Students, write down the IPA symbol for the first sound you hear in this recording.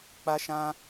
k͡p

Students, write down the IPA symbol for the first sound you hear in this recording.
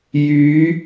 j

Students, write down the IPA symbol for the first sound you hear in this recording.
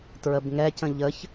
t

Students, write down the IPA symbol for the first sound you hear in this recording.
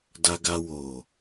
d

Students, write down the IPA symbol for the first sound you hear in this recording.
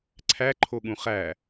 ǀʰ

